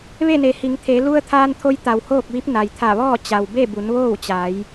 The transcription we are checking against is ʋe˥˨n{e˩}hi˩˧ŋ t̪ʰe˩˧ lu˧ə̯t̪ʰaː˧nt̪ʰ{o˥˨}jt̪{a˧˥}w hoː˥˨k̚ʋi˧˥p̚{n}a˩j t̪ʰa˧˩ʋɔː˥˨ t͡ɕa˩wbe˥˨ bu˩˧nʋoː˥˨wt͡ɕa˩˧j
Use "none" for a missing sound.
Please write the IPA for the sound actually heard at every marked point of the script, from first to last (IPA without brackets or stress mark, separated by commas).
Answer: e˩, o˧, a˩, n